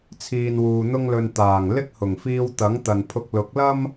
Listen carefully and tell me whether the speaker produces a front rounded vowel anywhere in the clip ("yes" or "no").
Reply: no